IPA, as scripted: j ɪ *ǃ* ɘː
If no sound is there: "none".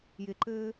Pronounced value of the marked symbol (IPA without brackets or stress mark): ǃ